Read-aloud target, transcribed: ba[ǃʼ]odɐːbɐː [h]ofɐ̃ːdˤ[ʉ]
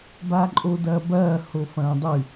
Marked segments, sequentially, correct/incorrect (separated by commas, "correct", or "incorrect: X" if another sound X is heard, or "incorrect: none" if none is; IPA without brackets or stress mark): correct, correct, correct